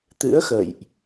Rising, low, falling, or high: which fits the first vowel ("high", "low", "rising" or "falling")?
rising